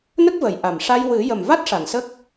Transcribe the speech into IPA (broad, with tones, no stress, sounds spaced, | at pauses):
n ə˦˥ k̚ v ə˨˩˨ j ʔ a˨˩ m ʂ a˧ j w ɨ˨˩˦ j ə˨˩ m v a˦˥ t̚ ʂ a˨˩˨ n s ə˦˥ k̚